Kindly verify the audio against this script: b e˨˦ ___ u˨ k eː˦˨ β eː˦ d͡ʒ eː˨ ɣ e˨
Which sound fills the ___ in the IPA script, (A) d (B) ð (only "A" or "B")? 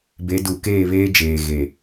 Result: A